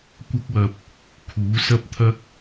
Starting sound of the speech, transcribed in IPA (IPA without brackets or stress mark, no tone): kʷ